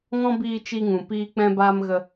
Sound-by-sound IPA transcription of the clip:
ŋ ɔ̃˦ b iː˧ t͡ʃ i˧ ŋ ũ˨ p iː˧ k͡p ɛ̃˦ b aː˦ m ɣ ə˧

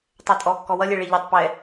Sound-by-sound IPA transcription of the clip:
tˤ ɛ tʼ ɔ kː ɔ w ʌ lʲ e ɭ e ʎ e tˤ p ɛ

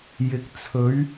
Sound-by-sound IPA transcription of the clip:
j ɪ˨˥ k̚ t͡sʰ ɵ˨˥ ɥ

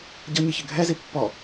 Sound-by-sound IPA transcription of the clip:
ɟ ʌ ɲ i ç ɪ ɡʱ ɛ z i pː ɔ

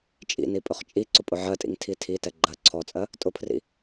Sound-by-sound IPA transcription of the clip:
t͡ʃʼ ḭ n i pʼ ɵ χ t͡ʃʼ i ǀ ʊ pʼ ʊ ʕ ɜ tʼ ḭ ŋ tʰ i tʰ i t ɛ ɡ͡ǃ ɜ ǀʰ ɔ t͡sʼ ɜ | tʼ ʊ pʰ r ḭ

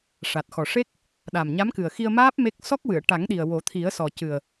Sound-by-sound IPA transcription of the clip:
ʂ a˨˩ t̚ x ɔ˨˩ ʂ e˦˥ k̚ | ɗ a˨˩ m ɲ a˧˥ m k ɨ˨˩ ə̯ x i˧ ə̯ m aː˦˥ p̚ m e˦˥ k̚ s ɔ˦˥ k̚ w ɨ˨˩˨ ə̯ ʈ a˨˩˦ ŋ ɗ i˨˩ ə̯ w o˨˩˦ t̪ʰ i˨˩˦ ə̯ s ɔ˨˩ c ɨ˨˩ ə̯

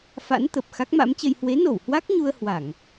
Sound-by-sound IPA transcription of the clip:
f a̰˧˥ n t̪ ə˨˩ p̚ x a˦˥ k̚ m a̰˧˥ m t͡ɕ ə˧ j h w e˨˦ n o˧˩ w h w a˦˥ k̚ ɲ u˧ ə̯ h w a˧˩˨ ŋ

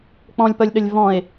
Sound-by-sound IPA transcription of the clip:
k͡p ɔ̃ lʲ p ʌ lʲ ɗ ə lʲ v ɔ̃ e̯

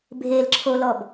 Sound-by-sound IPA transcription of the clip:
bʱ e l ǁʰ o l ɔ b

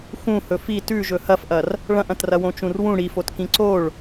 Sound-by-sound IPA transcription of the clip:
x ũ h ɵ f i t ʉ ʒ ɵ h ɐ f ʔ ɐ r | ɭ ɐ̃ ʔ ɐ̃ t r ɐ w õ t͡ʃ ũ r w ũ ɽ i f o t k ĩ ǀ o ɭ

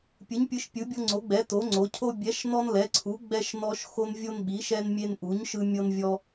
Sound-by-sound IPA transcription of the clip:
pʲ ɯ˨˥ ɲ pʲ ɯ˨˥ ʃ pʲ ɯ˨˥ bʲ ɤ˦ ŋ͡ǀ o˨˥ ɡ͡b ɛ˨˥ t o˨˥ ŋ͡ǀ o˨˥ cʰ o˦ bʲ ɛ˨˥ ʃ n ɔ˦ n l ɛ˨˥ ǀʰ u˨˥ ɡ͡b ɛ˦ ʃ n ɔ˦ ʃ x o˦ n vʲ o˦ n ɓ i˨˥ ʃ ɛ˦ n mʲ e˦ n ʔ u˨˥ ɲ ʃ ɯ˦ mʲ ɤ˦ n vʲ ɔ˦

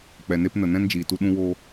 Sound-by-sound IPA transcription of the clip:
k͡p ɛ˨ n e˦ p n ə˨ n ɛ̃˦ n d͡ʒ iː˨ t u˧ ɗ ũ˦ w o˦

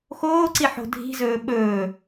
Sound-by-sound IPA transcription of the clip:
x oː ǀ i ħ o̤ dʱ i̤ z ɵː ɓ ɵː

